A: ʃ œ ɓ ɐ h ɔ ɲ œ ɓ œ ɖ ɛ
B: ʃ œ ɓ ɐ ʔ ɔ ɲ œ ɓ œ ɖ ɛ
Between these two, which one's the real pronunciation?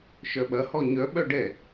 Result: A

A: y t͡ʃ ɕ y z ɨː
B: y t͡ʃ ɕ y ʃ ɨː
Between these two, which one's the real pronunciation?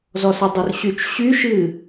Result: B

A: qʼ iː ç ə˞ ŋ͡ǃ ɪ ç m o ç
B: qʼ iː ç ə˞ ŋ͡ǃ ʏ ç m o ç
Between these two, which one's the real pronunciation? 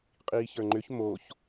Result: B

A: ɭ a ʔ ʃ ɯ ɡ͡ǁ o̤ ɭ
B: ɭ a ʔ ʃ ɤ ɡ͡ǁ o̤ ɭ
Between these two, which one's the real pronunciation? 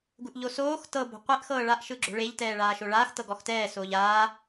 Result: A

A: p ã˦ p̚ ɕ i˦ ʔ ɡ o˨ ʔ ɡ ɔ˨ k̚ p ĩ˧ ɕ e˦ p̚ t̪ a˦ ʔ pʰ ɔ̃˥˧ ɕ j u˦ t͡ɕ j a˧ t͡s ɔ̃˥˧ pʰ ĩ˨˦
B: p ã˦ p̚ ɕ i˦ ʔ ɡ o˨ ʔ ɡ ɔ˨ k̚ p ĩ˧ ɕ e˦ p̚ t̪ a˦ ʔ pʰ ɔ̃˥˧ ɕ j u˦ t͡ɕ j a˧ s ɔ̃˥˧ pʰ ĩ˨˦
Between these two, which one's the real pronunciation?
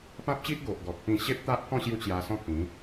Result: B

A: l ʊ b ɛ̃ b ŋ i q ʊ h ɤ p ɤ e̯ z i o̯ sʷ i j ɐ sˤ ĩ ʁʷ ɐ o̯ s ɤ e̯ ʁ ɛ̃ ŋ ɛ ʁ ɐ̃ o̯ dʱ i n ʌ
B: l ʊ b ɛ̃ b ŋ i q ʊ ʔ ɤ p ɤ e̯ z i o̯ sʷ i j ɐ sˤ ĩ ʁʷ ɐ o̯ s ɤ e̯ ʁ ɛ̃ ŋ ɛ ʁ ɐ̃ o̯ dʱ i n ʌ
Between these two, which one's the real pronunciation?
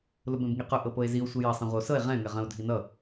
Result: B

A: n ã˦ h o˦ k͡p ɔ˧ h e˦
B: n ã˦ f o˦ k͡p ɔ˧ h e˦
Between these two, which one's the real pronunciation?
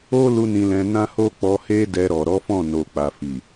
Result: A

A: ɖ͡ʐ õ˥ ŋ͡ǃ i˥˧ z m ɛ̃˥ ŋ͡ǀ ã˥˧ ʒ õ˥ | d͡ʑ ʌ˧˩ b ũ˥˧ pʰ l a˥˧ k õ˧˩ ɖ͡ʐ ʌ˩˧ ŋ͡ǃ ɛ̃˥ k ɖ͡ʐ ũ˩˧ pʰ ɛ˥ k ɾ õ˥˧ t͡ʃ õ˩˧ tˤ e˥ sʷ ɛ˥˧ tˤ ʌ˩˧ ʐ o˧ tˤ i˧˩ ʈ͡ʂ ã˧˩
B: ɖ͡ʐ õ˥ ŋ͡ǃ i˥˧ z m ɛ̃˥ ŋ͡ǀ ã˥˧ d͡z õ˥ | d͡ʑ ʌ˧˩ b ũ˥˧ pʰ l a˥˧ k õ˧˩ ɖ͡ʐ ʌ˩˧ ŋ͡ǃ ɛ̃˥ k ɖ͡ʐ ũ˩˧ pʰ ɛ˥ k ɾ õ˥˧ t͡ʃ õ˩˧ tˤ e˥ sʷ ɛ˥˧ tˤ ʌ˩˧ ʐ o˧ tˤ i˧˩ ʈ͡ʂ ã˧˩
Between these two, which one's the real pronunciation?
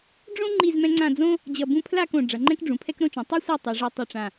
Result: B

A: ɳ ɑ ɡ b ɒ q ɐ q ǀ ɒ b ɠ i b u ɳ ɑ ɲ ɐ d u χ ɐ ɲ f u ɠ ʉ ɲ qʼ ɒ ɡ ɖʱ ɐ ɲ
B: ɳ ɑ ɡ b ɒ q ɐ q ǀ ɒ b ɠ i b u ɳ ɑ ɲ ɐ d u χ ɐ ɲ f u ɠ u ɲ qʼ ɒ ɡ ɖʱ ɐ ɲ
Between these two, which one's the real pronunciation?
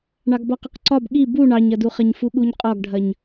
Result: B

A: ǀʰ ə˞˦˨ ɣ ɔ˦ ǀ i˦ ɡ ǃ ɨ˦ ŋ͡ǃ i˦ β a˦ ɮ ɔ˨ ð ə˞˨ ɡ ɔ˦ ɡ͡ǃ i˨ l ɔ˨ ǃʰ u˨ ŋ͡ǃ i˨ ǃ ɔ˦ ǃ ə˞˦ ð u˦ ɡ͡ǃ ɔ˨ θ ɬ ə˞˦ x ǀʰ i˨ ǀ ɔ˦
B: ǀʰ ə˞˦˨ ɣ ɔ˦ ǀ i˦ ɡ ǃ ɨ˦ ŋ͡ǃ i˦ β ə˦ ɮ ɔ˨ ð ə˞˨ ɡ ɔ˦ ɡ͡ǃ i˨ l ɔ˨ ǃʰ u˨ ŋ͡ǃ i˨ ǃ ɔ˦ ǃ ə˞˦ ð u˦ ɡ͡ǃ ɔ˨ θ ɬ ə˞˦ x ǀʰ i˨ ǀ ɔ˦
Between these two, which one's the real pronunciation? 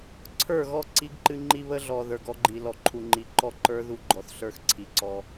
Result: B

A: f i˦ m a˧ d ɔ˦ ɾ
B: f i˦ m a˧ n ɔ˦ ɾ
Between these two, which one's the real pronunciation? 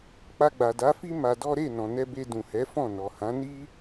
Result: A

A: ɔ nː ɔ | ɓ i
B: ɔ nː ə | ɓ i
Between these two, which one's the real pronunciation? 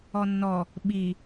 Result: A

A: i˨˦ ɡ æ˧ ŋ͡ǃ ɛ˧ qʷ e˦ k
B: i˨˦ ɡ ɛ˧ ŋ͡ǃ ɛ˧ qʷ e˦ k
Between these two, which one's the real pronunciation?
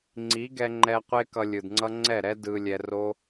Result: B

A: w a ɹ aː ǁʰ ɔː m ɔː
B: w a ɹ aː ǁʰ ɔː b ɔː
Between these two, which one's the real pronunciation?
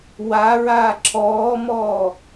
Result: A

